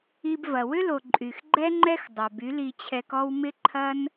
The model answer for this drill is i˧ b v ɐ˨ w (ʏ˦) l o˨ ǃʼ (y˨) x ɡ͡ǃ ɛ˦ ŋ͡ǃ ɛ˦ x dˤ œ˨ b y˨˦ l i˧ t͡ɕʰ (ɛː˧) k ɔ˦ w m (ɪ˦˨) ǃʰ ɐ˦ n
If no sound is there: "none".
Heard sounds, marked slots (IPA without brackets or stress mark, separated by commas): ʏ˦, y˨, ɛ˧, ɪ˦